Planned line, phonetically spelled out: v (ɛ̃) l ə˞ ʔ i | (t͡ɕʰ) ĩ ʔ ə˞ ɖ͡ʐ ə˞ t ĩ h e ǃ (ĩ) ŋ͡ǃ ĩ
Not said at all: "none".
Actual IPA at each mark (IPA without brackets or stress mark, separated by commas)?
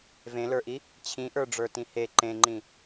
ẽ, t͡ɕʰ, ẽ